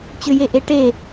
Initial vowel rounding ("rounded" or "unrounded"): rounded